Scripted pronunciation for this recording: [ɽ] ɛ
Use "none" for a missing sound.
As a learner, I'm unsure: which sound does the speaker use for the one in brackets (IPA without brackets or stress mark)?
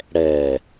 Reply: ɽ